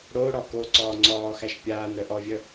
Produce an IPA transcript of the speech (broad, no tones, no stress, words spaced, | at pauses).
ɽoɽɔ koǀɔː ŋ͡ǀɔːxæʃ pʲaːn ɾœʔɔvʲœ